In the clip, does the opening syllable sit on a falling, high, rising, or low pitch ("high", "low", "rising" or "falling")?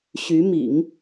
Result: rising